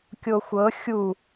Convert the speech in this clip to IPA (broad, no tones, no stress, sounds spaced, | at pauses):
kʲ o xʷ ɤ xʲ u